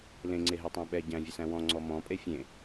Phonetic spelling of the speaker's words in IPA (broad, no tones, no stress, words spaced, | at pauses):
lẽŋ͡ǀeɦetˤæ̃ ɓɛ ɟæ̃vʲəsæ̃ wɔ̃ŋ͡ǀɔ mɔ̃pʼe fʲẽ